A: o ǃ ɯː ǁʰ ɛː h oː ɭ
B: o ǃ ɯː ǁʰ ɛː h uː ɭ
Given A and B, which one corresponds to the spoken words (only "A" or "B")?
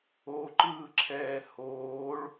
A